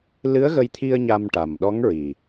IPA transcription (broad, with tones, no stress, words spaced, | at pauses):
lɨ˧˥ə̯ɣə˧jt̪ʰi˧ə̯ ɲa˧mʈa˨˩m ɗɔ˧˥ŋɹi˨˩